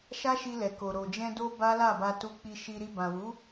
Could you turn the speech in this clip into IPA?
ʃ a˦ ʃ i˧ l ɛ˨ k o˨ ɾ o˨ d͡ʒ ɛ̃˧ d o˧ b a˦ l a˦˨ b a˧ t u˧ k͡p i˧ ʃ i˧ ɾ i˧ b ã˨ w u˨˦

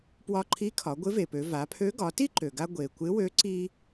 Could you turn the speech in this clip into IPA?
p w ɒ˧ ǃʰ i˧˥ kʰ ɒ˩˧ ɡʷ ɪ˧˥ v e˩ p ø˩˧ v a˩˧ pʰ ø˧˥ ɡ ɒ˩˧ t i˥ ǃ ø˩ ɡ a˧ ɡʷ e˩ kʷ ɪ˧˥ w ø˧˥ ǀ i˥

